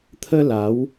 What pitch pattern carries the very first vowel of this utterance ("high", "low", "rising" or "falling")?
high